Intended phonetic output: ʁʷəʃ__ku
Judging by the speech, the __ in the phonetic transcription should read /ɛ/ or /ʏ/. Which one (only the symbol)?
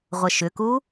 ʏ